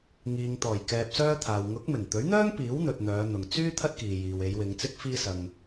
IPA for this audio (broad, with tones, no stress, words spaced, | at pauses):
ŋiː˨ŋt̪ɔː˨˩j kɛː˧p̚sœː˥t̪ʰaː˨w ŋʊ˨˥k̚mɪ˨˩ŋt̪ɵ˨˥ɥn̪œː˥ŋ piː˨˥wn̪ɵ˨t̚ n̪œː˨˧ n̪ʊ˨ŋ t͡syː˥ t̪ʰɐ˥t̚kiː˨jiː˨w e˨˧jwɪ˨˧ŋt͡sɪ˥k̚ fiː˧sɐ˨ŋ